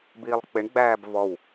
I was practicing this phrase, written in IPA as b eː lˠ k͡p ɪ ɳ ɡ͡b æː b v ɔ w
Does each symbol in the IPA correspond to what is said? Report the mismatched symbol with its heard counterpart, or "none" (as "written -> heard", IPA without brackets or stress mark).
eː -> iː